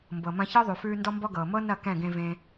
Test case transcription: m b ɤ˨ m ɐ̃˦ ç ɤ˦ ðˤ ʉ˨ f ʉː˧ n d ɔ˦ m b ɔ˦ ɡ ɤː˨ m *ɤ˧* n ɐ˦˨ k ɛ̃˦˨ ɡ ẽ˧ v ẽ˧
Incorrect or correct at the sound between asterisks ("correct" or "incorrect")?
incorrect